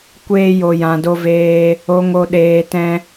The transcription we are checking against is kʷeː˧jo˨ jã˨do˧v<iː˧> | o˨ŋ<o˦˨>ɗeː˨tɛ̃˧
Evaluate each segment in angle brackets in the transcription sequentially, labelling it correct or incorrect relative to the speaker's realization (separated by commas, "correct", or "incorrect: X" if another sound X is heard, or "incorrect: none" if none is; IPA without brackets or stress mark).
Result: incorrect: eː˧, incorrect: o˨